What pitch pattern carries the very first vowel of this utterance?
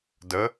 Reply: rising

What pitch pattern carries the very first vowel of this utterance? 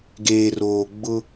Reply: low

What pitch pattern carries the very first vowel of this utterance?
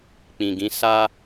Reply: low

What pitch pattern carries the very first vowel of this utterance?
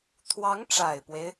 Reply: rising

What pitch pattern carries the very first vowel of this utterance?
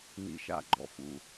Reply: low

